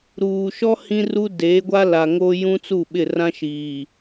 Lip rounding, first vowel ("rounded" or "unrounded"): rounded